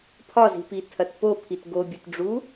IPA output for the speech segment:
pʰ ɒ z i̤ p i tʰ ɐ t p o pʰ i t ɡ o bʲ ɘ t ɖ͡ʐ u

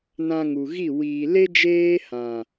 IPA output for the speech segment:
n ã˧ ŋ u˨ ɣ i˦˨ w iː˨ l e˦ d͡ʒ eː˦ h ã˨

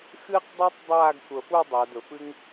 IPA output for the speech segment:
x ɨː˧ q dˤ əː˧ tˤ dˤ aː˥˧ ɡ sʷ əː˧˩ f u˥˧ dˤ ə˞˩˧ d ɵ˩˧ f ɨ˥ ŋ

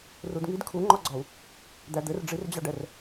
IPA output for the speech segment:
r u d ŋ i d kʰ u ŋ͡ǃ ɒ ɡ͡ǀ ɒ u̯ | d̪ æ d̪ ɘ r ɖ͡ʐ i r d͡ʑ ɑ ɖ ɛ r

